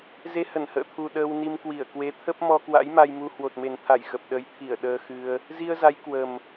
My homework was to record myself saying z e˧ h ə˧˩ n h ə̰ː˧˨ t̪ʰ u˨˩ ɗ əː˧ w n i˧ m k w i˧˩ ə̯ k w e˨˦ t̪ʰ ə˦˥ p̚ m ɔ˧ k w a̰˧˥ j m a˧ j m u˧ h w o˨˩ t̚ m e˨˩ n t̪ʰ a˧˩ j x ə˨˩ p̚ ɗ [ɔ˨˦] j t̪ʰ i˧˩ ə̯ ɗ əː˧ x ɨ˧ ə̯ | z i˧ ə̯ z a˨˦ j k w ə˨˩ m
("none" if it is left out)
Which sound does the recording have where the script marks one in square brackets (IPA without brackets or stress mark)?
ə˨˦